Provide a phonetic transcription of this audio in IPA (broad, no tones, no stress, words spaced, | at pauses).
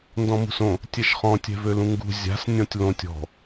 ndɔ̃mṳsõ | tʲɛʃχɔ̃ tʲɛ̤vølũŋɡṳ zʲa̤s nʲɔ̃tʲlõtʲ ɔ̤